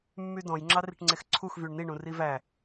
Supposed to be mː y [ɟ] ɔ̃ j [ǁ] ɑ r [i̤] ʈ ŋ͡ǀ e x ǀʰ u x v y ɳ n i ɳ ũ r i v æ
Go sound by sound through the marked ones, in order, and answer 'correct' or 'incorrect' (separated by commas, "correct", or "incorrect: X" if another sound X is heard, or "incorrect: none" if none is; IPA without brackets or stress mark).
incorrect: d, incorrect: ŋ͡ǁ, correct